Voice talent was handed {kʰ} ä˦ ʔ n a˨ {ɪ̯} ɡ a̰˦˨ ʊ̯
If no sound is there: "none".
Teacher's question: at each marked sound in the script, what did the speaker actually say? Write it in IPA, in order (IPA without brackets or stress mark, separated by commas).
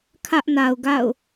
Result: kʰ, ʊ̯